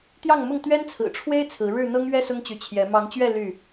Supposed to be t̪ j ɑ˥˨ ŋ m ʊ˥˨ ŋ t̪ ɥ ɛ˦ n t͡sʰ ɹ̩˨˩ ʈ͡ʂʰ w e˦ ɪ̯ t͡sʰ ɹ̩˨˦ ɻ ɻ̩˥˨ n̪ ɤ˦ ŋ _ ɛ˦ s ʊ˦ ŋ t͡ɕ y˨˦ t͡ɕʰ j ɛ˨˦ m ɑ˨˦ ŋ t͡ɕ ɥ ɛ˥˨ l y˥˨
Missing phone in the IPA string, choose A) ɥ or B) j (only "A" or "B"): A